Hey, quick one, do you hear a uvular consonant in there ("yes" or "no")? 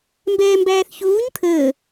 no